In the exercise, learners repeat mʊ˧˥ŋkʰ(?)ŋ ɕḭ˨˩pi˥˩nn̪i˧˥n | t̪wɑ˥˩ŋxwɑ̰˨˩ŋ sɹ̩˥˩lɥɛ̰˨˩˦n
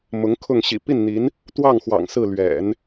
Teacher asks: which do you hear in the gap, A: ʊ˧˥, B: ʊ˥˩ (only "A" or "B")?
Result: B